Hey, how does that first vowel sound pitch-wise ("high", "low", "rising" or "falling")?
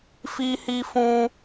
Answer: high